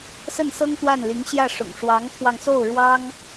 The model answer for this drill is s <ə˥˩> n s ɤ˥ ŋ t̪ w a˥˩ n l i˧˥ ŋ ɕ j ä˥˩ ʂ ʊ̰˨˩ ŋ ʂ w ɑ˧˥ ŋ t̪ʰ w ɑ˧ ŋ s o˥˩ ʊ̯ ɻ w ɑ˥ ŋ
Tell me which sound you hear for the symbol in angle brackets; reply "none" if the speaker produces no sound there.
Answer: ə˥˩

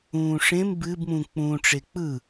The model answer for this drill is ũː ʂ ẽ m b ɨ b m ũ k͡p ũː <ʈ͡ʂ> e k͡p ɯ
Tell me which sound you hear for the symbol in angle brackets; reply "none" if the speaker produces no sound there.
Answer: ʈ͡ʂ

